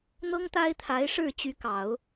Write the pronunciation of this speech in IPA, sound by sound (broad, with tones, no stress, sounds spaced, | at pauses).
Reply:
n̪ ɤ˥ ŋ t̪ a˥ ɪ̯ t̪ʰ a˧˥ ɪ̯ ʂ ɻ̩˥˩ t͡ɕ y˧˥ k ɑ˨˩˦ ʊ̯